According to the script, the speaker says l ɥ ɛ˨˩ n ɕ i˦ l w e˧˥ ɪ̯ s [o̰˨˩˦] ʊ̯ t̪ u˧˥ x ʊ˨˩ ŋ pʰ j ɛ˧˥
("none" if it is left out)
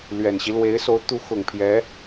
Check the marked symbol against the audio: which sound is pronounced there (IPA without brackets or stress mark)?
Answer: o˧˥